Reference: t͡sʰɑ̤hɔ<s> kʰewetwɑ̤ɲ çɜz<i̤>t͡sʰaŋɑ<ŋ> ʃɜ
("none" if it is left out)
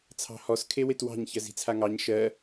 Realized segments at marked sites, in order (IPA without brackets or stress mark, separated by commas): s, i̤, ɲ